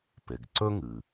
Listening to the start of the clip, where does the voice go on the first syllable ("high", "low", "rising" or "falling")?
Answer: low